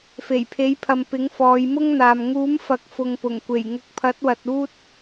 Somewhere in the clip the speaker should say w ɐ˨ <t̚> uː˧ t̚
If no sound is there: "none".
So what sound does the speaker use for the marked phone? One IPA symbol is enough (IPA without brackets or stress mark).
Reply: t̚